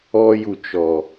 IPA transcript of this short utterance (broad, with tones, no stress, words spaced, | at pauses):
ɔ˧ ju˨t͡ʃɔ˨